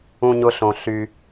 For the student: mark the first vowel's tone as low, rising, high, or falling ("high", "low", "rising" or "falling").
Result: high